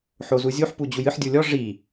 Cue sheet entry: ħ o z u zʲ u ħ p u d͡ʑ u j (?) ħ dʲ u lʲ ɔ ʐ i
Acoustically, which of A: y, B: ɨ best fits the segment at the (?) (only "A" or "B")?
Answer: B